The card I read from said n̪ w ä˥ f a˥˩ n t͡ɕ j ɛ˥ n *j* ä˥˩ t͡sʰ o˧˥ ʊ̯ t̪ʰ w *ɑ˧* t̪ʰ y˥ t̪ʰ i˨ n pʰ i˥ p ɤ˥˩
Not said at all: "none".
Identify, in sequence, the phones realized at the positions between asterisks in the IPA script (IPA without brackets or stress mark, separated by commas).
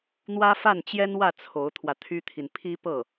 w, ä˧